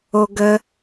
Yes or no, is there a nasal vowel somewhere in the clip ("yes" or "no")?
no